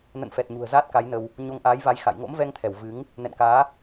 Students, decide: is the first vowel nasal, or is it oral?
oral